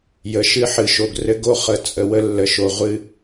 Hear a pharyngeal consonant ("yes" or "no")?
yes